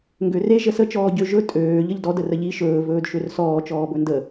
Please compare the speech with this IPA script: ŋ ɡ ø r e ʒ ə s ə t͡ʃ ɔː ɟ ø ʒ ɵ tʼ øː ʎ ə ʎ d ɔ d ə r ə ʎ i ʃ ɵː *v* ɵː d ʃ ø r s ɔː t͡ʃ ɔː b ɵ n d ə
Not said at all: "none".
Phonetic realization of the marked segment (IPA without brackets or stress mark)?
v